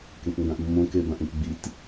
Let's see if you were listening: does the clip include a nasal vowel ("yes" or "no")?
yes